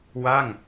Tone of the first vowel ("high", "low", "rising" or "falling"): falling